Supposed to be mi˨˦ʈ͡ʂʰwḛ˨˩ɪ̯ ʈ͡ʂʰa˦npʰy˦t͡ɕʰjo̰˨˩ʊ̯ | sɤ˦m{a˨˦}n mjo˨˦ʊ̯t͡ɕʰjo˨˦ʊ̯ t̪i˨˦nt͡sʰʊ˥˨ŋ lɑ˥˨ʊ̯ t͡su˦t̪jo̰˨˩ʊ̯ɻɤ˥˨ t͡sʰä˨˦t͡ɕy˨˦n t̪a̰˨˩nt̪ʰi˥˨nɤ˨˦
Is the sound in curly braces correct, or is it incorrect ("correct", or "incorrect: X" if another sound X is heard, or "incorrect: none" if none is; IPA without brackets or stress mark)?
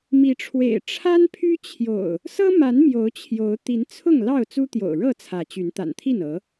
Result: correct